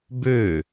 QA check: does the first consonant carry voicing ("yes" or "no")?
yes